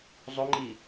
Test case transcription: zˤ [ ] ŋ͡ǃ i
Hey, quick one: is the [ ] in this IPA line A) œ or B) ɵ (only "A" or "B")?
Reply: B